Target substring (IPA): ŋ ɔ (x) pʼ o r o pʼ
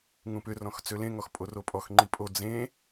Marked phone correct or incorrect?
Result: correct